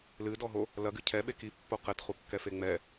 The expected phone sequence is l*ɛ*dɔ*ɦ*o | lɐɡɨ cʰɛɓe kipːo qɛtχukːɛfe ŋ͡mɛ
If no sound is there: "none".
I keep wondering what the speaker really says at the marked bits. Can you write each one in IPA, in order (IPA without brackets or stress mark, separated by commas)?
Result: ɨ, ɦ